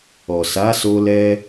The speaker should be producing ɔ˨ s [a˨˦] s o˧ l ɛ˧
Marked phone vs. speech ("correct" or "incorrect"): correct